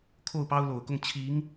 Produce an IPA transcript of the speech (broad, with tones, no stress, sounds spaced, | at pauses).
kʰ o˥˩ ʊ̯ p ɑ˥ ʊ̯ l o˨˩ ʊ̯ k ʊ˥˩ ŋ t͡ɕʰ i˧˥ ŋ